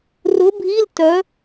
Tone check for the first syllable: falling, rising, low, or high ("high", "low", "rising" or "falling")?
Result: rising